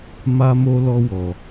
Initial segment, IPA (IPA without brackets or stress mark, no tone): m